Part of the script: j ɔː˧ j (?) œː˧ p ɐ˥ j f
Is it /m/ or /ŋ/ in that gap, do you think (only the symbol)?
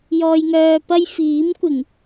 ŋ